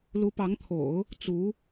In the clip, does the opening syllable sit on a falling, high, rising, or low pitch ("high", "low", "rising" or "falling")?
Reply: rising